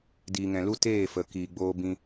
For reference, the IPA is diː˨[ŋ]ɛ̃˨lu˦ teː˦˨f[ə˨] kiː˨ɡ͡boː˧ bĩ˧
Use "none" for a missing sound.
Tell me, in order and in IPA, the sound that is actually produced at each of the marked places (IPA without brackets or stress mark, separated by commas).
ŋ, ə˨